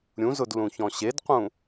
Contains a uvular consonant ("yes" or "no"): yes